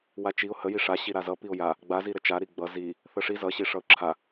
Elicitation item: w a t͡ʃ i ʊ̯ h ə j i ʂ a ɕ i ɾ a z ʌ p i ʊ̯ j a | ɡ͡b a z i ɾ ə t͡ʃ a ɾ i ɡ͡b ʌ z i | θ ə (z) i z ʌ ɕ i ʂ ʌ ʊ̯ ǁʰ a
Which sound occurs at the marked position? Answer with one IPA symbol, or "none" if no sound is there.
ʂ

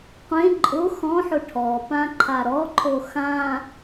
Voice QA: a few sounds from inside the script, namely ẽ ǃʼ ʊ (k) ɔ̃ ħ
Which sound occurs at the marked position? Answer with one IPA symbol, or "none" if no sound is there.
x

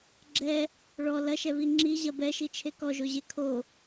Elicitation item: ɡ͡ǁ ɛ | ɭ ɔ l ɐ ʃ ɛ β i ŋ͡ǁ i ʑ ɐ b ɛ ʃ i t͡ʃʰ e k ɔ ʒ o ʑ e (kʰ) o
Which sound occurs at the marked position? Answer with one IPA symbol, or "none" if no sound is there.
kʰ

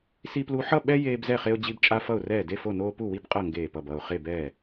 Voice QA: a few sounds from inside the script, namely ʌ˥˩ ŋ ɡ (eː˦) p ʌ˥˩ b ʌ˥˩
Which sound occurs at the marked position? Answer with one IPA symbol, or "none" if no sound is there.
eː˥˩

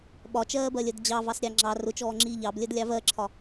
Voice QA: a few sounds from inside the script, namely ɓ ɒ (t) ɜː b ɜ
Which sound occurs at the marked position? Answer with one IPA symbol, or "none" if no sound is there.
t͡ʃ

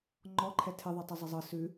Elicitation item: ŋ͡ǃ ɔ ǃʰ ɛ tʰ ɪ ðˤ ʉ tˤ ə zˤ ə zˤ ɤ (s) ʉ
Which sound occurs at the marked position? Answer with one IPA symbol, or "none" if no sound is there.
s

